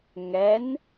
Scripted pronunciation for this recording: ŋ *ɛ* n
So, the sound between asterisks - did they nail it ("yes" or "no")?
yes